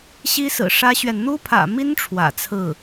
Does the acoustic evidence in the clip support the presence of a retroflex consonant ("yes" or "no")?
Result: yes